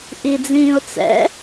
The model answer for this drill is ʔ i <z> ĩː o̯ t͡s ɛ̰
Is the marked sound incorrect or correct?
incorrect